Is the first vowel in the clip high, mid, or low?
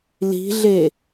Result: high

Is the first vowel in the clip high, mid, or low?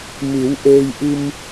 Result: high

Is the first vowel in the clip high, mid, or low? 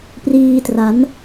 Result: high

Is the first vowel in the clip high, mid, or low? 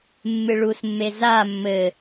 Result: high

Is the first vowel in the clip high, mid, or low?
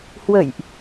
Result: mid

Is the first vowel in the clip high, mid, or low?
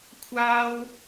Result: low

